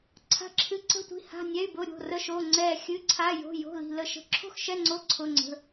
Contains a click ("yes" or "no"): yes